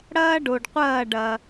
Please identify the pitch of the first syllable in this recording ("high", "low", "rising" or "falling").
high